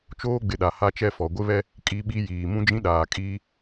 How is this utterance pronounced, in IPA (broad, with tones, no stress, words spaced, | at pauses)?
t͡ʃoː˦ɡ͡bɪ˨ɗa˨ ha˦t͡ʃɛ˦fɔ˨ ɡʷɪ˦βɛ˦ | kʼi˦ɓi˦jiː˨ mũ˦d͡ʒĩ˦ɗaː˨kʼiː˦